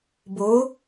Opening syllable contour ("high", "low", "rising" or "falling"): rising